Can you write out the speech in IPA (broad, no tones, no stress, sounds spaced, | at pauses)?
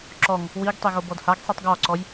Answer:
ǁ ɔ ŋ | w i ɡ tˤ e ɣ o b ɔ d h a ɡ sˤ i tˤ ɡ ɔ ǀ ɔ j